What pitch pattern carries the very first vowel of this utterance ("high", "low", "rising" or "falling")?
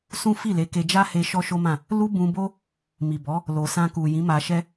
high